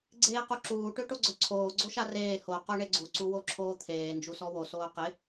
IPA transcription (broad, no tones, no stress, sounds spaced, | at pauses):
ɡ͡ǀ eː q u ǁ uː ʈ ø ʈ o ɡ͡ǀ œ ǀʰ oː ɡ͡ǀ o ʃ a r eː h o q o ɳ e ɡ͡ǀ u ǀ u w o ǁʰ oː t̪ʰ eː n d͡ʒ u s ɔ w o s oː q ɪ